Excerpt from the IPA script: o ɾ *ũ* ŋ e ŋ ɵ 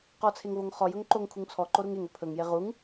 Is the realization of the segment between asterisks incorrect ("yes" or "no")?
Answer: yes